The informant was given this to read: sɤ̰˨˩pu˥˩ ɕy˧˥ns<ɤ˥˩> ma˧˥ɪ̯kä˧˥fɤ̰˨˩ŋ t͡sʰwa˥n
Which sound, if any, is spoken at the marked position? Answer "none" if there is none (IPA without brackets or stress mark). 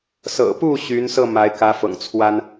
ɤ˥˩